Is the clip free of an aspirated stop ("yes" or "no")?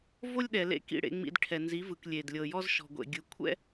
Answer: no